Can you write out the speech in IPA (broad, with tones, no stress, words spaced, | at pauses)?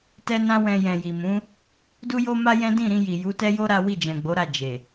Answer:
tɛ˦nã˦wɛ̃˧ jɛ̃˨ ji˨mũ˨˦ | du˦jo˦ma˦jɛ̃˦ dĩ˦˨ɾĩ˧ji˨ ju˨˦tɛ˦jo˦ ɾa˦ wi˦˨d͡ʒɛ̃˨ɡ͡bo˨˦ɾa˦˨ d͡ʒe˨